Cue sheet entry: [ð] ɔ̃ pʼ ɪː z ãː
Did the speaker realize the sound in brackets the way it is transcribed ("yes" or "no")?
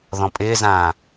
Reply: yes